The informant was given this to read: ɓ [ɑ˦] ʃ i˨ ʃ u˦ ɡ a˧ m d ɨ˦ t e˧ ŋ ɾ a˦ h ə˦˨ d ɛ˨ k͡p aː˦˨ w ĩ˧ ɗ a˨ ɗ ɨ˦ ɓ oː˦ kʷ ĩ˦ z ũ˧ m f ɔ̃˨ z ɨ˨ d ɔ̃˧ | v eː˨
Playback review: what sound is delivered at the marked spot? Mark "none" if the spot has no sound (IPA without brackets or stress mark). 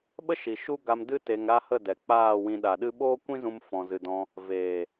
ə˦